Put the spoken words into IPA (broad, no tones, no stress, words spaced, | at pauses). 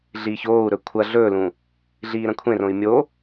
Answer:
ɮiːçoːu̯ɾɵ kʷʰɐ ɮɵːlũ | ɮiːɾɐ̃kʷʰẽrõi̯ mʲo